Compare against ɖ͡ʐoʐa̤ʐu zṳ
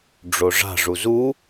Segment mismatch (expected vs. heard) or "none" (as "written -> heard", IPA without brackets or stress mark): ṳ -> u